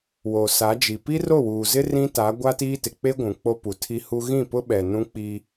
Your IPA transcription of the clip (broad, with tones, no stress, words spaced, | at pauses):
wo˨sa˨˦d͡ʒi˨ pi˦ro˦˨wuː˨zɪ˦ rĩ˦ta˨˦ ɡʷa˦tiː˦tɪ˨ k͡pe˦ ɡʷũ˨k͡po˦ pu˨tʰi˦hu˦ ɣĩ˦˨pʊ˦ɓɛ˨ nũ˦k͡pi˦